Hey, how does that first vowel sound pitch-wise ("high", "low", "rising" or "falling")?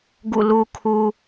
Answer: falling